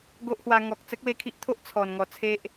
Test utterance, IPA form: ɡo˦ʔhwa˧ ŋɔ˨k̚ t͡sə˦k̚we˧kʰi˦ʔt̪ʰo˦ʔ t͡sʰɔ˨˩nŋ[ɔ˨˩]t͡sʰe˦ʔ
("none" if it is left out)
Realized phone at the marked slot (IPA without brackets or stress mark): ɔ˨˩